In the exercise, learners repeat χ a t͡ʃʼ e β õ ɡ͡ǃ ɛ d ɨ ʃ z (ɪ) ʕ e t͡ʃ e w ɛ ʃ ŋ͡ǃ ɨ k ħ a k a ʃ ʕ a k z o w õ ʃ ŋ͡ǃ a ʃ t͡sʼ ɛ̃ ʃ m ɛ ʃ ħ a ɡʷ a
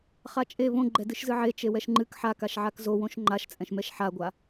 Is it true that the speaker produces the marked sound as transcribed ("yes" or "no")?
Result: no